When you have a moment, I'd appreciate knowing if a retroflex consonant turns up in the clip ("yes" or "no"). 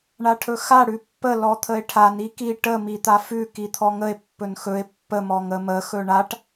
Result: yes